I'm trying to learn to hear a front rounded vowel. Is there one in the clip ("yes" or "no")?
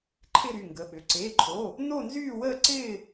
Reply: yes